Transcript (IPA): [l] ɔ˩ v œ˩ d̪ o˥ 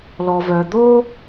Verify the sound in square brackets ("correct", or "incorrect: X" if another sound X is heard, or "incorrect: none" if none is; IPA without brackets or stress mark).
correct